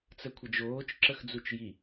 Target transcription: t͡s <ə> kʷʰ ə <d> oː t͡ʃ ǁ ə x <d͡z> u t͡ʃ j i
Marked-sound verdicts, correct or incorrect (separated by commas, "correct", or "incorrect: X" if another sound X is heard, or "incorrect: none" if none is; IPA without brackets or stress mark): correct, incorrect: d͡ʒ, correct